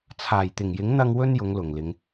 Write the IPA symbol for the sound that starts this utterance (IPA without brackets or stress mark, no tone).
t͡sʰ